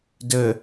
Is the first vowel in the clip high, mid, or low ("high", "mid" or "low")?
mid